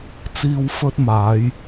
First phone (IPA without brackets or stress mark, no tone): t͡s